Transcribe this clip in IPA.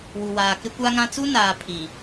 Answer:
w u˨ w aː˨ k ɪ˦ kʷ a˦ ŋ ã˦ t͡s u˦ n aː˨ pʰ i˨

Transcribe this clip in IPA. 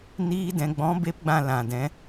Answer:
n iː˧ d ɛ̃˨ ɡ͡b ɔ̃˨˦ b e˦ p ɡ͡b ã˦˨ l ã˨ d ɛ̃˨˦

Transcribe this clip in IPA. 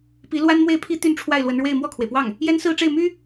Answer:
p i˧˥ l w a˥ n m w e˥˩ ɪ̯ pʰ i˥ t̪ y˥˧ n ʈ͡ʂʰ w a˥˩ ɪ̯ l w ə˧˥ n ɻ w e˥˧ ɪ̯ m w ɔ˥˩ kʰ w e˩ ɪ̯ p w ɑ˥˩ ŋ | j ɛ˥ n s ɹ̩˥˧ ʈ͡ʂ e˥˩ ɪ̯ m y˥

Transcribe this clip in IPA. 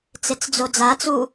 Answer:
t͡s e t͡s d͡z o d͡z a t͡s u

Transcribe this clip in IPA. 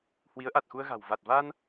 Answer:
h w i˨˦ ə̯ ʔ a˨˩ t̚ x u˧ ə̯ ɣ a̤˨˩ w v a˨˩ t̚ v aː˧ n

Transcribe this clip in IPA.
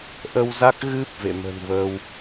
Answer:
ʔ ə˧ w z a˦˥ k̚ ɣ ɨ˦˥ p̚ v ḛ˧˨ m ə̤˨˩ n v əː˧ w

